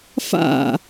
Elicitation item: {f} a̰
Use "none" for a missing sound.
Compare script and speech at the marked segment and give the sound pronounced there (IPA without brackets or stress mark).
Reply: f